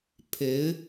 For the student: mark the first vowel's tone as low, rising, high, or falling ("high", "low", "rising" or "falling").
rising